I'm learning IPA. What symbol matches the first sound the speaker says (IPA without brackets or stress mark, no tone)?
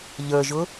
ʎ